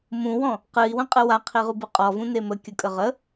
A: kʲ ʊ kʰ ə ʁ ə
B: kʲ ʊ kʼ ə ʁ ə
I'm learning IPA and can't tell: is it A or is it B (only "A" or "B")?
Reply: B